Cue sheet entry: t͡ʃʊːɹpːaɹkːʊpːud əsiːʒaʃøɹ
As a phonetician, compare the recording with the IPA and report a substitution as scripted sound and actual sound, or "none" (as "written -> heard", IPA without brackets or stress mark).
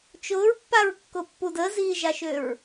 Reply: s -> z